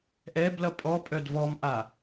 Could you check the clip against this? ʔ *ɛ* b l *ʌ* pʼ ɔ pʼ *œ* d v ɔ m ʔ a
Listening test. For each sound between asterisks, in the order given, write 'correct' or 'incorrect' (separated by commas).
correct, correct, correct